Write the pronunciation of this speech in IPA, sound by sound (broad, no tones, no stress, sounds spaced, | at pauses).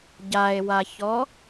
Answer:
ɟ a e̯ w a ç ɔ